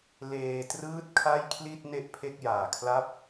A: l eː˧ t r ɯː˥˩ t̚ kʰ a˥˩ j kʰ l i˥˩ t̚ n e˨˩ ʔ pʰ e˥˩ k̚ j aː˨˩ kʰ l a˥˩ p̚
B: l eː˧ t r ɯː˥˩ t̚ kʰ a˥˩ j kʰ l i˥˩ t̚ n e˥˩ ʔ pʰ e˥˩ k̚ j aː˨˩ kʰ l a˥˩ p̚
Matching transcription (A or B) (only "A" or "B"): B